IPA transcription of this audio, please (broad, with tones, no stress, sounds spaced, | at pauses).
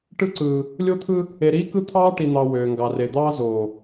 ʈ ɯ˦ ǀ ɯː˨ | lʲ o˦ t̪ʰ ɯ˦ | e˨ ɾ iː˦ k ɯ˦ t̪ʰ ɑː˦ ʈ i˨ n̪ ɑ˨ w øː˨ ŋ ɡ ɑ˨ r e˨ d̪ ɑː˦ z oː˨